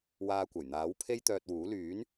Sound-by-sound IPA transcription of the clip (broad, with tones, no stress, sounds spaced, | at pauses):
w aː˧ kʷ ɐ˨˩ j n̪ aː˨˥ w pʰ e˥ j t̪ œː˧ t̚ w uː˨˥ l yː˨˥ n